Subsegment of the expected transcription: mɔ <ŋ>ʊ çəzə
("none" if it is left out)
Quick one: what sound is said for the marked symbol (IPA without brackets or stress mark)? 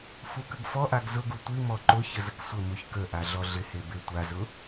ǃ